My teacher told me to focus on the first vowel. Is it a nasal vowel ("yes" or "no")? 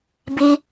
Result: no